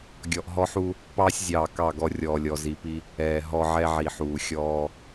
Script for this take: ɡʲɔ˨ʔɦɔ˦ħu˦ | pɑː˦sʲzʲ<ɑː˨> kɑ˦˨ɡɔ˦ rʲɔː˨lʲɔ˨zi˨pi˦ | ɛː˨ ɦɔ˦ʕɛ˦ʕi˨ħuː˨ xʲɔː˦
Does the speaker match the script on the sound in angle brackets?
yes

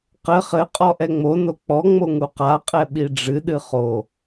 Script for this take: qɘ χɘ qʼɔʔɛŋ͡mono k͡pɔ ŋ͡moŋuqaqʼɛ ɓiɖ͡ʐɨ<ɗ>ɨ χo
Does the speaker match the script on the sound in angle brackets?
yes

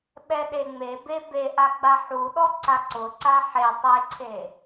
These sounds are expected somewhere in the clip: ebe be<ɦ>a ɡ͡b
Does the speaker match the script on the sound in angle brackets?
no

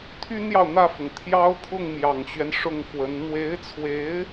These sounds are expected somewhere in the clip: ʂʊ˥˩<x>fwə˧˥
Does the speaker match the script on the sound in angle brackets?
no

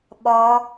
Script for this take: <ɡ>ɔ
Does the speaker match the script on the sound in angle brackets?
no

